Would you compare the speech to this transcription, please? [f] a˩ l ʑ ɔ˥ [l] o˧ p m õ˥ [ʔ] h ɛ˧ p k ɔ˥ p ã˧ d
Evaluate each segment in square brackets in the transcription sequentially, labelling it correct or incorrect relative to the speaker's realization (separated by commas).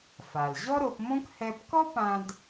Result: correct, incorrect, incorrect